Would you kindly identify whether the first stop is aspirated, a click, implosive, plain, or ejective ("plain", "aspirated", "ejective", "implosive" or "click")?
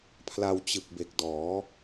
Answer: aspirated